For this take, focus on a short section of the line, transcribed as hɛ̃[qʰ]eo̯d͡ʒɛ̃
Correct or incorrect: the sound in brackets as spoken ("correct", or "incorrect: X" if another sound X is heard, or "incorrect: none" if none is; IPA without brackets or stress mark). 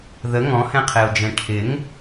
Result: correct